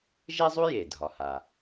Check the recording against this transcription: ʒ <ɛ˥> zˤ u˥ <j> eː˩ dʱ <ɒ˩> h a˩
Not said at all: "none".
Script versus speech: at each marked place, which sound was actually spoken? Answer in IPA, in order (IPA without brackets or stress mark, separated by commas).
ɛ˥, j, ɒ˩